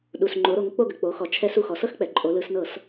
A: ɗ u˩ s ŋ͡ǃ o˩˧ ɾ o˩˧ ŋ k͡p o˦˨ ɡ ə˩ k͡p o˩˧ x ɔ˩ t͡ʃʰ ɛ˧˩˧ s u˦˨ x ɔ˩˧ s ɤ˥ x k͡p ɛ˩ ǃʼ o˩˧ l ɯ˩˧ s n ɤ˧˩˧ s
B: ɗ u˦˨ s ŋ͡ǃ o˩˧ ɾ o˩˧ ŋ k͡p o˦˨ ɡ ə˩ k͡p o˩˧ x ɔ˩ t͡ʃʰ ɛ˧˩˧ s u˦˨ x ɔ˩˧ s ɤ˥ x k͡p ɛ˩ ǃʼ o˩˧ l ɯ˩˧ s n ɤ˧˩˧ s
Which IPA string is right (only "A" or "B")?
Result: A